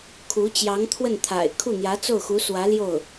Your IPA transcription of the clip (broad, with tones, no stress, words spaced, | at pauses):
kʰu˧˥t͡ɕjɑ˧˥ŋt̪ʰwə˥˩n t̪ʰa̰˨˩ɪ̯ kʰu˥˩n̪jä˧˥t͡so˥˩ʊ̯xu˧˥ swä˧˥ljo˥˩ʊ̯